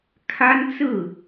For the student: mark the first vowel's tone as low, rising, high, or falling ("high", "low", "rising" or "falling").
high